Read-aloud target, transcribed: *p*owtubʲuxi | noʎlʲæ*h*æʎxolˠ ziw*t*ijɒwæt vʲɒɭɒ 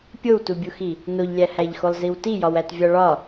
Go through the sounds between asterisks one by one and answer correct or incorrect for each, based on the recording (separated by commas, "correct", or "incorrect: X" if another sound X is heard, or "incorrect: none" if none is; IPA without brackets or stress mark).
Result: incorrect: pʲ, correct, correct